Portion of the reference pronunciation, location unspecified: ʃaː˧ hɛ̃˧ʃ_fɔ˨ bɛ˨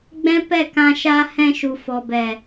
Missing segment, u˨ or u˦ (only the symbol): u˨